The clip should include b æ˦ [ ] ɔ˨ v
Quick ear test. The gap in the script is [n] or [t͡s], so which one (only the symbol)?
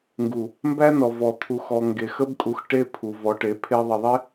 n